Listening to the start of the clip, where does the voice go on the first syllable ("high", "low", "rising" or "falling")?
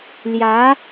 rising